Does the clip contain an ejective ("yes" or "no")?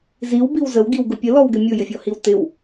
no